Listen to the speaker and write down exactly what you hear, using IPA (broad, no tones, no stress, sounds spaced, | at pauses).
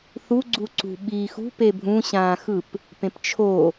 θ u ɡ͡ǀ u ǀ ṳ ɓ iː x ṳ p e bʱ ũ ɕ ãː x ɯ p | p ẽ p t͡ʃʰ o